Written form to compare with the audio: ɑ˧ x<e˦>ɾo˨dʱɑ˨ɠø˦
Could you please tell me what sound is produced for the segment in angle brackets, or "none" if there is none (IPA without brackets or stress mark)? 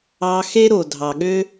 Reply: e˦